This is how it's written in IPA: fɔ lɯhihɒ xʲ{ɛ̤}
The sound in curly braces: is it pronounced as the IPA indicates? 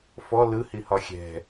yes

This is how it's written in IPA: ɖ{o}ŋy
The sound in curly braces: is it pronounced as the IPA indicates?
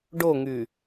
yes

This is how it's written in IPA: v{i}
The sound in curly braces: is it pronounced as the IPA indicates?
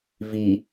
yes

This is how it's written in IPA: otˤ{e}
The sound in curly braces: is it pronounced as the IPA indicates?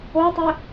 yes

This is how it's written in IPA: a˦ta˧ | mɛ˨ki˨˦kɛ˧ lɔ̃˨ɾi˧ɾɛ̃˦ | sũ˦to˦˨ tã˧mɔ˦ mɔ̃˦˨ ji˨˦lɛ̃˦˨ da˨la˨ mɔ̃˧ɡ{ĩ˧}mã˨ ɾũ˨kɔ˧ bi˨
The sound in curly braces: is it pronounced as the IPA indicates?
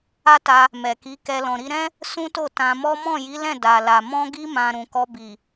no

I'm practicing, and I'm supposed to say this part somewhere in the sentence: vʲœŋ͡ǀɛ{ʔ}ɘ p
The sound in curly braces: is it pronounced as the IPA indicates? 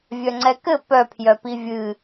no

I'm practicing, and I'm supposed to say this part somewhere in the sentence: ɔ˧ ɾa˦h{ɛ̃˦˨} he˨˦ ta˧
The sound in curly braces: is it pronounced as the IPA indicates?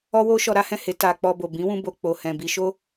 yes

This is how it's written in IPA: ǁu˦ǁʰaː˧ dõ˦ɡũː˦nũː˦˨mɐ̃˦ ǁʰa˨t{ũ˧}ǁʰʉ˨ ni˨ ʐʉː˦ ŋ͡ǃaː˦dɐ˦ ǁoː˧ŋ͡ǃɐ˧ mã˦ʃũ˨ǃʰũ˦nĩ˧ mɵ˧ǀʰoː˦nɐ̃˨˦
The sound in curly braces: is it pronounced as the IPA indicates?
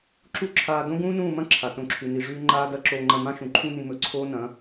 no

